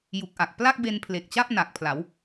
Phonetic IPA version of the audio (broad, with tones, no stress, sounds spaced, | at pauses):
j u˨˩ k̚ ʔ a˨˩ k̚ p l a˥˩ k̚ b e˧ n pʰ l e˨˩ k̚ t͡ɕ a˥˩ p̚ n a˨˩ k̚ pʰ l a˩˦ w